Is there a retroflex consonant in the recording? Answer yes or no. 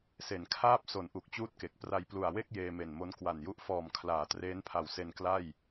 no